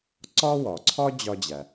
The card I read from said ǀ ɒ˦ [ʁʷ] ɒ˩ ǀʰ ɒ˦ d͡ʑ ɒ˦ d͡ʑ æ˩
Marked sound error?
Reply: yes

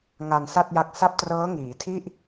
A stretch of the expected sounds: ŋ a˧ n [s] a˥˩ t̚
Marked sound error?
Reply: no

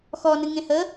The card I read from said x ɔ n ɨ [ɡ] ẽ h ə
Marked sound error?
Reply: yes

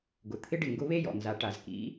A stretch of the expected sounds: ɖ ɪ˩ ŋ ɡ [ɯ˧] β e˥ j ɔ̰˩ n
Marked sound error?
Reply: yes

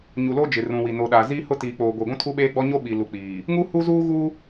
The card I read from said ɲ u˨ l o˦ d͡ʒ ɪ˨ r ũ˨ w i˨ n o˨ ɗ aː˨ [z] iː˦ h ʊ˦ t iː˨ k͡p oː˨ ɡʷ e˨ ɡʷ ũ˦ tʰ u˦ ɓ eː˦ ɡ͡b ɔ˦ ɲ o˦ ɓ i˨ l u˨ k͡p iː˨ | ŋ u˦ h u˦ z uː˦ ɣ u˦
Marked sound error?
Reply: no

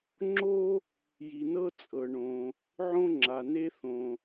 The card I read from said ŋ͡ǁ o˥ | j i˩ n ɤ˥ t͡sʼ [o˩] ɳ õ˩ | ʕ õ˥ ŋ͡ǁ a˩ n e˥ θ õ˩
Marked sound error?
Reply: yes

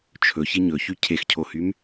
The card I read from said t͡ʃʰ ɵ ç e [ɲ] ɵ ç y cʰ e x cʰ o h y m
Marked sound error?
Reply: no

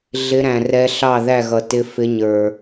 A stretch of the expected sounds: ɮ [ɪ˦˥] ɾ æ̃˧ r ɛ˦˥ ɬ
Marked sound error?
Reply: no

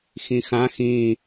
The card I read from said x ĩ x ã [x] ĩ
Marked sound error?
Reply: no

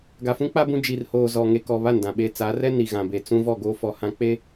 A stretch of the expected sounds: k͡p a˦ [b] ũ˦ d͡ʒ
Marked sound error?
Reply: no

